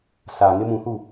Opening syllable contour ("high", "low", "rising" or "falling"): low